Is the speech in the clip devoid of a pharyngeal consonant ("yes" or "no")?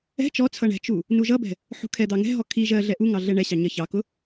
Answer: no